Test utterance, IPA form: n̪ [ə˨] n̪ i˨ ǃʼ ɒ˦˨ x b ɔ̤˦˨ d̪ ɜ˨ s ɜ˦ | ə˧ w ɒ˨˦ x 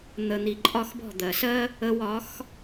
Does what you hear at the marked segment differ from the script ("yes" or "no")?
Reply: no